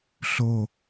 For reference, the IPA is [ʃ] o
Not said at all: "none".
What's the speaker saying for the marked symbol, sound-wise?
ɬ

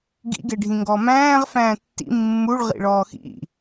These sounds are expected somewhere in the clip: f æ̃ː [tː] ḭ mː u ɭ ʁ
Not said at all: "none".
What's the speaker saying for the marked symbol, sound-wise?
tː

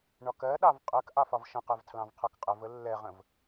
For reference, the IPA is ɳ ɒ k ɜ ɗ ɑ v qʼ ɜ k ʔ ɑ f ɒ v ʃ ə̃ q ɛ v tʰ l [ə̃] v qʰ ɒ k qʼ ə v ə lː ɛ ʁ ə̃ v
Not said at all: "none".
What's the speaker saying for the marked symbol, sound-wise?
ɑ̃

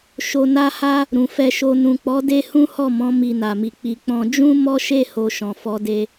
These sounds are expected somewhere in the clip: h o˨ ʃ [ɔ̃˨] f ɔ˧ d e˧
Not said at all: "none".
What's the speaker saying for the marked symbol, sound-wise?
ɔ̃˨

